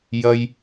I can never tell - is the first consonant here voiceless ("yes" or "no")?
no